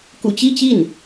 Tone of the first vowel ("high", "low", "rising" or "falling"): low